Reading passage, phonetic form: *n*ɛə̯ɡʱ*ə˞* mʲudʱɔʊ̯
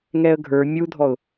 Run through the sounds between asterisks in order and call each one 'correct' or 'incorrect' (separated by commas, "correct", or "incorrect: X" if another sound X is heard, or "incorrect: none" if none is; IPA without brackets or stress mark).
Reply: incorrect: ŋ, correct